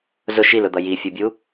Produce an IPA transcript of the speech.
z ʊ ʃ i l ʊ d̪ ʌ j i fʲ u bʲ u

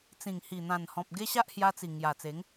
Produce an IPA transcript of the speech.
t͡s ĩ˨˩ ŋ h i˨˩ n̪ ã˨˩ n h ɔ̃˨ p̚ ɡ e˦ ɕ a˦ ʔ h j a˧ t͡s i˨˩ ŋ j a˨˩ t͡s e˨˦ ŋ

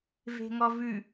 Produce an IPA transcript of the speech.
v e̤ ŋ ɔ v ʉ

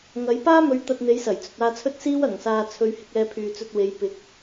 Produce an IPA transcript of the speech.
ŋ ɐ˨˥ j p aː˥ m ɵ˨˧ ɥ t̪ ɐ˧ t̚ n̪ e˨˥ j s ɐ˨˩ j t͡s ɵ˨ t̚ aː˧ t͡sʰ ɵ˥ t̚ s iː˥ w ɐ˨˩ ŋ s aː˨ t͡sʰ ɵ˨˧ ɥ h ɪ˧ k̚ ɛː˧ pʰ yː˨ t͡s ɵ˧ t̚ w e˨˧ j p ɪ˨˥ k̚

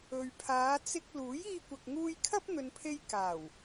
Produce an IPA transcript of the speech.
ɵ˨ ɥ pʰ aː˨˧ t͡s ɪ˧ k̚ l uː˨˥ j iː˧ kʷ ɐ˨ k̚ ŋ uː˧ j kʰ ɐ˥ p̚ n̪ ɵ˨ n pʰ e˧ j k aː˨˩ w

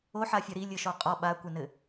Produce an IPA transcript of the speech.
o ħ a fʲ ɐ ɾ i lʲ ɘ ʃ ɔ qʼ ɔ ɓ a kʷ ɘ n ɘ

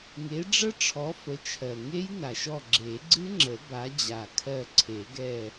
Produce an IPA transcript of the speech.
ŋ e˨˦ ɖ͡ʐ ə˦˥ ʈ͡ʂʰ ɔ˨˦ f ə˨˦ t͡ʃʰ ɜ˨˩ ŋ e˦˥ j n a˨˩ ʃ ɔ˦˨ ɡ͡ǁ e˨˩˦ ɡ͡ǀ ɨ˦˥ ŋ͡ǁ ə˨˩˦ b a˨˦ d͡ʑ a˨˩ kʰ ɜ˦˨ ǀʰ e˨˩˦ ɡ ɛ˦˨

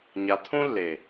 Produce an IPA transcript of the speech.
ɲ a˨ t̪ʰ ũ˦ lː e˨

